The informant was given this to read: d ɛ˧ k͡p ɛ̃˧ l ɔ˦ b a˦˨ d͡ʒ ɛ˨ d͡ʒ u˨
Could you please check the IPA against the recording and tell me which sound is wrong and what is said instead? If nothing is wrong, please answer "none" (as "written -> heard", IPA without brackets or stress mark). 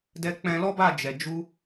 u˨ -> u˧